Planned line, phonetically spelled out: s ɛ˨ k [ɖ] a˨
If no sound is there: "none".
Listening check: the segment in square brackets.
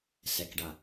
ɖ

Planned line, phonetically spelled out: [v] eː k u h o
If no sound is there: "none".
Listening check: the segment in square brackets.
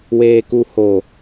w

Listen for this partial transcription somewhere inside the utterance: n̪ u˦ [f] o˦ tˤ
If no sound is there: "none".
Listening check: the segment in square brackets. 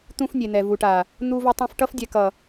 v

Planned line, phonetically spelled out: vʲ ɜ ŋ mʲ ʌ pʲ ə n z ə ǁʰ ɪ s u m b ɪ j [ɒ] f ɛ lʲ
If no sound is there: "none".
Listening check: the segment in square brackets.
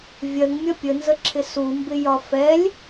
ɒ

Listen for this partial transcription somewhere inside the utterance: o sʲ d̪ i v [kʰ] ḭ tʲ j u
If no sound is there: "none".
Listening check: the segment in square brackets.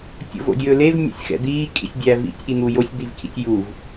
kʰ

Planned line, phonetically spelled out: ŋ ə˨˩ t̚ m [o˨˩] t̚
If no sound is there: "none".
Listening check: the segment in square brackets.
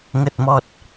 ɔ˨˩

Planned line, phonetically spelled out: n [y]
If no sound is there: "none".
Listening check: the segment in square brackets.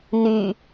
y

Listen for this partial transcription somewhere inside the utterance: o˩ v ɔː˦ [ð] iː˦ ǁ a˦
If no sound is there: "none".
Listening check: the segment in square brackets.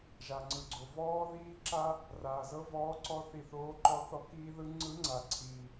ð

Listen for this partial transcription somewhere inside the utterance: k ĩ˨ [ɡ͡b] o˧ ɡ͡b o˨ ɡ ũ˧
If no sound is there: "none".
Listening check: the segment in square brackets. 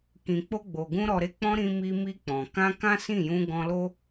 k͡p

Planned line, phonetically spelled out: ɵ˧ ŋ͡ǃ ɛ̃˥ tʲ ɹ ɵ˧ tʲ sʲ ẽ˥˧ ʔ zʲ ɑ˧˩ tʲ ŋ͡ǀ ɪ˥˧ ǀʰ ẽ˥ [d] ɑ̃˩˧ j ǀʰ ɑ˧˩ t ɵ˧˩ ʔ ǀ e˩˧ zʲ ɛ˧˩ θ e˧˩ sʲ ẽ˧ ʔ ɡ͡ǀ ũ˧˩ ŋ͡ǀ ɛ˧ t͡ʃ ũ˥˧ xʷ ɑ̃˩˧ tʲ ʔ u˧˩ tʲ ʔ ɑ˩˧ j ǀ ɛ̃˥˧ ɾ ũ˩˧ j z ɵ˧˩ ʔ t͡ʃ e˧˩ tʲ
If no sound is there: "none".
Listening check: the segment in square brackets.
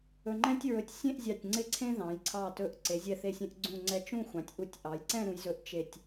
ð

